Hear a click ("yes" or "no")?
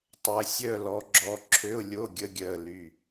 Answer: yes